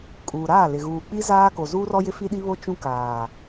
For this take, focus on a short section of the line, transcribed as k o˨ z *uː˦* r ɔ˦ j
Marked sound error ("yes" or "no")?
no